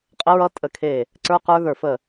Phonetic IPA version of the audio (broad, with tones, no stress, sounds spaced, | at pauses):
qʼ ə˦˥ ɹ ʌ˦˥ tʼ ə˧˩ kʰ e˧˩ | ǀ ə˞˦˥ q ə˞˦˥ ð ə˞˧˩ f ə˧˩